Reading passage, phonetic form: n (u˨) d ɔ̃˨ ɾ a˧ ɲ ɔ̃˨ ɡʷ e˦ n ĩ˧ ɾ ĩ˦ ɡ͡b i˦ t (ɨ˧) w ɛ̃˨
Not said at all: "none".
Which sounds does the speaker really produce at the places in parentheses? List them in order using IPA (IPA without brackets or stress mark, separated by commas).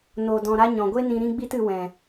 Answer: o˨, ɨ˧